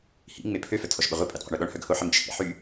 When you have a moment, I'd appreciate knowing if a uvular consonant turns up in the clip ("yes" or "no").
yes